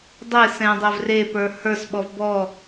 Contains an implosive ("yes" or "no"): yes